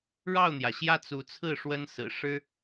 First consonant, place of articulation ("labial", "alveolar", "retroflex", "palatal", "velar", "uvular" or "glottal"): retroflex